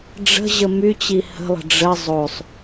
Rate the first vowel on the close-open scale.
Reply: mid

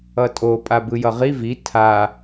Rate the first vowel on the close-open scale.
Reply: mid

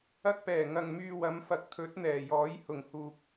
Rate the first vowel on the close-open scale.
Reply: open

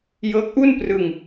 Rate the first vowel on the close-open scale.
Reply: mid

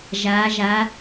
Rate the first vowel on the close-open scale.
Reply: open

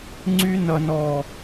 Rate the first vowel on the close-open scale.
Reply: close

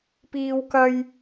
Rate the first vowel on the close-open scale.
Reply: close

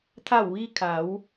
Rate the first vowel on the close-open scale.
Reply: open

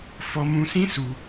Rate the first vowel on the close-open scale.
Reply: mid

